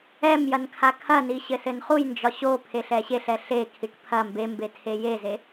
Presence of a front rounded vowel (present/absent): absent